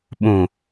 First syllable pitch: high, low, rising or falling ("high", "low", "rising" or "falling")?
low